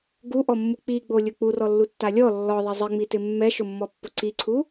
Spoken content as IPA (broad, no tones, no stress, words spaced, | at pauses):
ɡuʔɔmːu k͡piɡ͡bolʲʊ k͡purɔlːutːa lʲɔ lːɔðˤɛ zˤɪŋ͡mitɪ mːɛʃʊmːɔpːʊ ǀiǀʰu